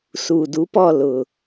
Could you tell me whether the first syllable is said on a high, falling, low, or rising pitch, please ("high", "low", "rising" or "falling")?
low